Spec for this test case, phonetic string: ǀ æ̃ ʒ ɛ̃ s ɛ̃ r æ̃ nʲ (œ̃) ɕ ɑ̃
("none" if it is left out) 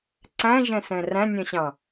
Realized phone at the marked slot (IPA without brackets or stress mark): œ̃